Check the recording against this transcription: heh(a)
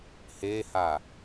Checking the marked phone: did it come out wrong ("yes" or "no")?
no